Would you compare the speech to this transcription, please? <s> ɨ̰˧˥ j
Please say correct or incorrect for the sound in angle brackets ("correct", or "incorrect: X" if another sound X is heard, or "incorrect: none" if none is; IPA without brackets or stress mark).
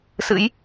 correct